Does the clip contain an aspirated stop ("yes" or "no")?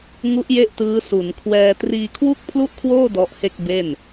yes